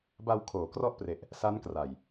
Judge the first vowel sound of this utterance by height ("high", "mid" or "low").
low